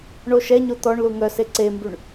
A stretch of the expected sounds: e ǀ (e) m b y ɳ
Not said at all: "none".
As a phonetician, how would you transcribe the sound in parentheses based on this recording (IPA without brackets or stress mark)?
e